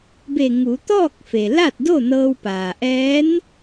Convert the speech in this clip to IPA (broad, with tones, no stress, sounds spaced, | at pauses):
b e˧˩ ŋ u˩˧ t̪ ɔː˥˨ k̚ f e˩ l a˥˨ t̚ d o˥˨ n ɤː˧ w p aː˩ ʔ ɛː˧˥ n